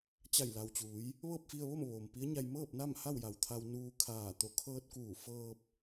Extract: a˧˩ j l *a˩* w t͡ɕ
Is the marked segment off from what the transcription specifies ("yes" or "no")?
no